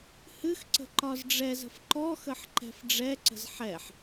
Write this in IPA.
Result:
hɨxǀə̤ ǃɒzɖ͡ʐɛzə̤f ǃɔxəħ ǃɛ̤fɖ͡ʐɛǀə̤z ħɛħ

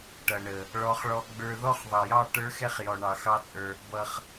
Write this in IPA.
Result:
ʈʌ˨ɳə˨ | ɭɔ˧χɭɔ˧ ɡ͡bə˞˧ðɔ˦χðˤʌ˨jɑ˦˨ ʈə˞˦xɛ˦χ jɔ˨ɳɑ˨xɑ˦t͡sʼə˞˧ | bʌ˧χ

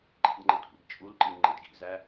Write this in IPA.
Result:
ǃḭdŋ͡ǃɪd kʷḭdt͡ʃʼulǃi ŋ͡ǃɪdɡḭzæ

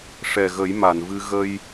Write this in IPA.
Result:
ʂɛ˨˩ɣə˨˩˦j ma˨˩˨nvɨ˧ ɣə˧j

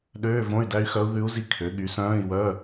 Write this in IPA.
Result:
ɗøː˧˥˧võ˧˥˧y̯dæ˧˥y̯xœ˧˥u̯ ðʉ˧˥u̯zi˧˥ kʰø˩˥ ɠy˩˥sœ̃ː˧˥˧i̯wœ˧˥˧

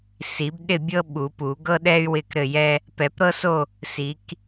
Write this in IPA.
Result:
si˨˩˦bɗɪ˥˨bʲɤ˥ ɓu˨˩˦pu˨˩˦ ɡɤ˥ ɗɛ˥y̯ wɪ˥˨kɾɘ˥˨jɛ˥ | pɛ˨˩˦pɾɤ˥so˥˨ | si˨˩˦k

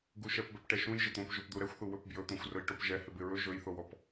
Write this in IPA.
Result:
ɡuʃɛpbɛp ʈɛʃũjʒɪ t̪õpʒopd̪u ɾɛxʷθu wɵpbjɵt̪õxʷ rɵjʈopʒɛ hɪbɪɹɵ ʒɵjθowɔp

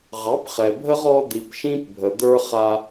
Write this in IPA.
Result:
ʁɑ˨˦pχɛ˨bʱə˦ʁ ɔ˦ d̪i˨pʃĩ˦p bʱə˨d̪ə˞˦ χa˦

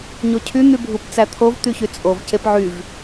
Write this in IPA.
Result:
ɲocʰy n̪ybʱupt͡sæt̪ʰov t̪yçyt͡sʼov cepʕyv

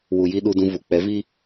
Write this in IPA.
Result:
wu˨ji˧ ɗu˧dũ˧ vu˨k͡pɛ˨˦vi˦

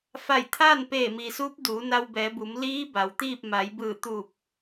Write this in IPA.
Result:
fa˧˩jt̪ʰaː˥˨n peː˧˩mi˩suː˧˥p̚ duː˩˧na˧wbɛː˩˧bu˩˧m liː˧˥ ba˩wt̪iː˥˨p̚ ma˩˧jbɯː˧˩t̪u˧˩p̚

